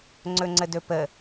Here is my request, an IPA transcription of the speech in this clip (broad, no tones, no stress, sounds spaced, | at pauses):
ŋ͡ǀ ɵ ŋ͡ǀ ə d ɵ p ə